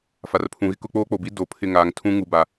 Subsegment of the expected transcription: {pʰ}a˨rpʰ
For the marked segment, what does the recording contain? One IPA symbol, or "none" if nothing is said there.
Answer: f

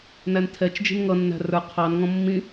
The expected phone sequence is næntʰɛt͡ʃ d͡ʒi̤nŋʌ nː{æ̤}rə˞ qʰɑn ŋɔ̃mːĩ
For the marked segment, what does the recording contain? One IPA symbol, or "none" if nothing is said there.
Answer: æ̤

